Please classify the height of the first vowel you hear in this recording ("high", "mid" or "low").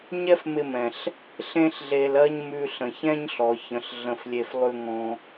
mid